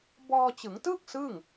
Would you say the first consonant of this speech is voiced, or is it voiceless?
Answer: voiced